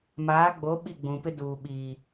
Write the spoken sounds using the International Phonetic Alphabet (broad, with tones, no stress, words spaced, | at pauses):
maː˨˦ɡ͡bo˨˦ ɓi˦˨ɡ͡bũ˨pɪ˦ duː˨ɓiː˨